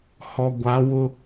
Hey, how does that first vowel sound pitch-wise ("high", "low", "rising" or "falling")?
low